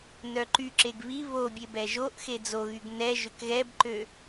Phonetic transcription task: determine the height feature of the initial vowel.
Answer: mid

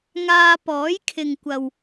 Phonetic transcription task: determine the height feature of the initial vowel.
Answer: low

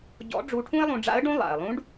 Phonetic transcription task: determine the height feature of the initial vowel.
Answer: mid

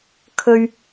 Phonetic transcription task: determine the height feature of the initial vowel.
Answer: mid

